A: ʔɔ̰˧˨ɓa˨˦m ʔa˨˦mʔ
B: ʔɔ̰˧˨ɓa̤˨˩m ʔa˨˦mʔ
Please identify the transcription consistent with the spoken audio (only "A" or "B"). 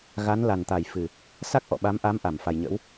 A